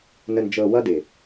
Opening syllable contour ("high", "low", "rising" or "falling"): low